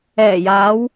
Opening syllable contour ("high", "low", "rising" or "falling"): low